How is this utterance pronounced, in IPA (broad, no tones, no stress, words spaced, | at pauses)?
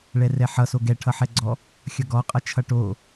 ɭɛrɛħʌso ɡɛʈʰʌħɛɡ͡ǀɔ | xʲʌɡɔ qʼʌt͡ʃʰʌʈo